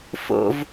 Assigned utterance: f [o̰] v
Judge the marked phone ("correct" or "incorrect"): correct